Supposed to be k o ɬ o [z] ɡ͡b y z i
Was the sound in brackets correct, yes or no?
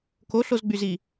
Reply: yes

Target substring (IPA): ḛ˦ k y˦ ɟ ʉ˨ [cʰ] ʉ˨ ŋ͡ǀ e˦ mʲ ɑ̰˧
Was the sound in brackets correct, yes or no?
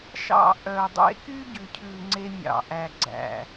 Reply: yes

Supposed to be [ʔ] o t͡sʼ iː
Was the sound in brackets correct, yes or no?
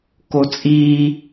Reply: no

